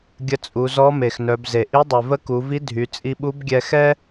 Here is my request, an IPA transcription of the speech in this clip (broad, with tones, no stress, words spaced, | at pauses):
ɡʲə˧t͡sʼu˩˧zɔ˧˥ me˩xnœ˩˧bze˩ ʔi˧˥dˤy˩ və˧˥ku˩˧vi˧˥ dʱy˩˧ t͡sʼi˧ɓu˧˥bɡʲɛ˧xɛ˥